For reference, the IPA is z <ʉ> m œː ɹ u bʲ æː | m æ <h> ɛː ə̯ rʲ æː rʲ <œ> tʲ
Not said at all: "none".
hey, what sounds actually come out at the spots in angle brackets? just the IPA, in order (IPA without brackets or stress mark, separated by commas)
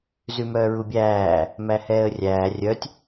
ʉ, h, œ